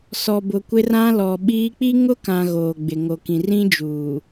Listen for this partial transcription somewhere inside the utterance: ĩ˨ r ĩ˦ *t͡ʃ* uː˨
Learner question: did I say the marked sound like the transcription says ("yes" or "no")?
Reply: no